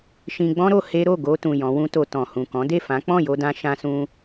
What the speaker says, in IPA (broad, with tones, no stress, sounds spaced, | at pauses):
ʃ ĩ˧ ɡ͡b ɔ̃˦ ɾ o˧ h e˦ ɾ o˦˨ ɡ o˧ t ũ˨ j ɔ̃˨˦ w ũ˦ t o˧ t ɔ̃˨ h ũ˨ k ɔ̃˨˦ d e˦˨ f ã˨˦ k͡p ɔ̃˦˨ j o˧ d ã˧ ʃ ã˧ s ũ˧